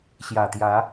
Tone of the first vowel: low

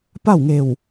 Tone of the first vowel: falling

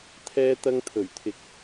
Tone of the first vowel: high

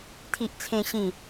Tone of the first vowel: high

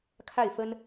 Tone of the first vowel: falling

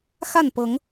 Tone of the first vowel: falling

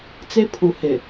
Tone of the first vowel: high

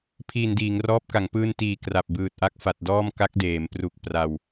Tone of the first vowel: low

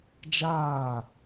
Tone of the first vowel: falling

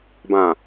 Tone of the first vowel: low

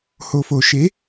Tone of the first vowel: low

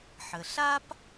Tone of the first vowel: low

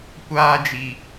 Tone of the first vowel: high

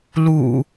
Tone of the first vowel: low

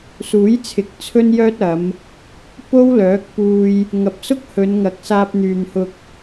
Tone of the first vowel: rising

